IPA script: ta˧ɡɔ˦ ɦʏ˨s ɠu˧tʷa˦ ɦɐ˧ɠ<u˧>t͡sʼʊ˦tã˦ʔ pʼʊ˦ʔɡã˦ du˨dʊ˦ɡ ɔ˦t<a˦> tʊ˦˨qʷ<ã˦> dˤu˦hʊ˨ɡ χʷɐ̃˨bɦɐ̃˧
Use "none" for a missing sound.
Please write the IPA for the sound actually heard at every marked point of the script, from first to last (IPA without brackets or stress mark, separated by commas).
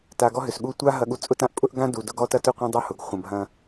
u˧, ɐ˦, ã˦